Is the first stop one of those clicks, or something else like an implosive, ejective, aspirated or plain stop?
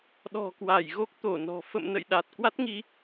implosive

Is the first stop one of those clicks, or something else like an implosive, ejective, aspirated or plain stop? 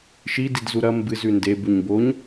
plain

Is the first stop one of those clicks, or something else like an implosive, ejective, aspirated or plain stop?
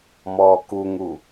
plain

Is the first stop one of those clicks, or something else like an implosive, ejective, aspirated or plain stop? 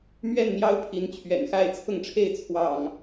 aspirated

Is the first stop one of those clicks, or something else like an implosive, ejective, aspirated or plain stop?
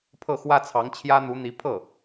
aspirated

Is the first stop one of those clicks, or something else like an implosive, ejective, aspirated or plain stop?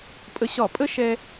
ejective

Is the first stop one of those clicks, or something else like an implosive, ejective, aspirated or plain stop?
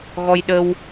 implosive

